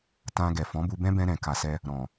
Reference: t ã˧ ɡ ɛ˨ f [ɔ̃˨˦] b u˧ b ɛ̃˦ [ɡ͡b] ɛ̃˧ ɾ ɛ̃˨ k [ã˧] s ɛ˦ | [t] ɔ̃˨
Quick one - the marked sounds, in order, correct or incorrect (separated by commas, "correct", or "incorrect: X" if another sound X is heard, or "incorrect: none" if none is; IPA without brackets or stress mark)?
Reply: correct, incorrect: b, incorrect: a˧, incorrect: ɾ